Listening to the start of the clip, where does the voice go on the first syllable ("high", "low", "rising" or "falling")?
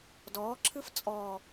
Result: rising